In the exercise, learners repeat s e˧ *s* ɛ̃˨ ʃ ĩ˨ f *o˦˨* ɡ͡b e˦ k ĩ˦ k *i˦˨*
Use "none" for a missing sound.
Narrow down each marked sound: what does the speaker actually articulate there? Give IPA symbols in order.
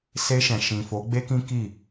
ʃ, o˨˦, i˦˨

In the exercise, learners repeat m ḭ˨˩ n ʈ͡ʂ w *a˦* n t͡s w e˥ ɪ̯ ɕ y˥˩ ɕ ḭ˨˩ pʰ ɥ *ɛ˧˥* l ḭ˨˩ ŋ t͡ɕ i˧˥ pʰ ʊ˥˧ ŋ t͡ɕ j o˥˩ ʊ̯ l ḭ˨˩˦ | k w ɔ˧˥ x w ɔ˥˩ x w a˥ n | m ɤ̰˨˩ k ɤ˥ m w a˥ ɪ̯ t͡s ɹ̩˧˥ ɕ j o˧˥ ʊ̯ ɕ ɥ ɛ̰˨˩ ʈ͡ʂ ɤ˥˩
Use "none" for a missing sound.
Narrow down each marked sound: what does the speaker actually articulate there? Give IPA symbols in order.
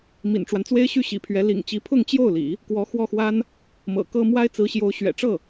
a˦, ɛ˧˥

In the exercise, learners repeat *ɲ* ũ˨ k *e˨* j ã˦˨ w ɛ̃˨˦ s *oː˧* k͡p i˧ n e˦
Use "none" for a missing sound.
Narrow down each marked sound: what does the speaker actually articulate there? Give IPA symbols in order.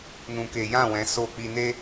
n, e˨, oː˧

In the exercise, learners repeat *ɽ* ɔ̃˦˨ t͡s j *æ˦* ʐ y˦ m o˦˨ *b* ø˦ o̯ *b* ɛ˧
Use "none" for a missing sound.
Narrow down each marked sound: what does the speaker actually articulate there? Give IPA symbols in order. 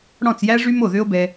ɽ, æ˦, ð, b

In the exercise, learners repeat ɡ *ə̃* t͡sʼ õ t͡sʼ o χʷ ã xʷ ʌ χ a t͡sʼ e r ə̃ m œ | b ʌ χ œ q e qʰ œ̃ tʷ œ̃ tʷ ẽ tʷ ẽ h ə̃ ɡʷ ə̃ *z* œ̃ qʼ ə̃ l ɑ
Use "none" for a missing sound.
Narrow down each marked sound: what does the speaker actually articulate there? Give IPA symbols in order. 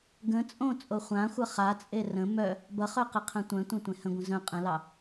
ə̃, z

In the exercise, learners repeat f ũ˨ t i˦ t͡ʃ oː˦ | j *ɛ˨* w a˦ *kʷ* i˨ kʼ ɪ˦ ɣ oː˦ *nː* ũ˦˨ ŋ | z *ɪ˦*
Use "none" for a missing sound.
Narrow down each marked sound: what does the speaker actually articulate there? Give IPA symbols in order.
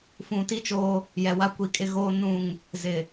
ɛ˨, kʷ, n, ɪ˨

